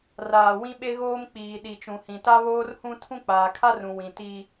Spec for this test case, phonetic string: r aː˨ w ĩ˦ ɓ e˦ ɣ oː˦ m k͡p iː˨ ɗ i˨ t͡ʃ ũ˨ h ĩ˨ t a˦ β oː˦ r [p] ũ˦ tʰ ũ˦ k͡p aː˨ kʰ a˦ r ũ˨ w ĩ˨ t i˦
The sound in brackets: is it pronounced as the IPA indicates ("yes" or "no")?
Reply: no